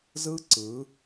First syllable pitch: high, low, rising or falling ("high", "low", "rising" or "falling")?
high